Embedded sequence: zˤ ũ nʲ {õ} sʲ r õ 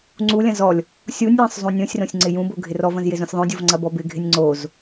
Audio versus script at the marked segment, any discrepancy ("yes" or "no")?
no